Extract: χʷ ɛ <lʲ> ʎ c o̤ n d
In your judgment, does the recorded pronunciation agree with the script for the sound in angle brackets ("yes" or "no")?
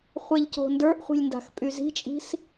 no